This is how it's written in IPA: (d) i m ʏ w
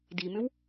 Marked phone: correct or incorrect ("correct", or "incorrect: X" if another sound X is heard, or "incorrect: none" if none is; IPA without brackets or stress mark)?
correct